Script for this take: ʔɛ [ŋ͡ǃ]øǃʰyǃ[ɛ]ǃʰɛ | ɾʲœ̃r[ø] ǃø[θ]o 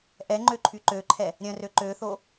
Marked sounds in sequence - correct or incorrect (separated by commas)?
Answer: correct, incorrect, correct, correct